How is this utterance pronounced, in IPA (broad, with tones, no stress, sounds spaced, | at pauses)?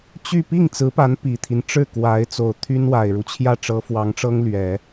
t͡ɕ y˥˧ p i˥˩ ŋ t͡s ɹ̩˧˥ p a˧˥ n p i˨˩ t̪ʰ i˦ n ʈ͡ʂ ɻ̩˥˩ k w a˧˥ ɪ̯ t͡s o˨˩ ʊ̯ t̪ʰ y˥ n w a˨˩ ɪ̯ ɻ u˦ t͡ɕʰ j ä˥˩ ʈ͡ʂ ɤ˧˥ f w ɑ˧˥ ŋ ʈ͡ʂ ɤ˥ ŋ l ɥ ɛ˨˩˦